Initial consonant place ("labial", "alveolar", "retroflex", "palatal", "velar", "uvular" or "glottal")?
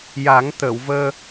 palatal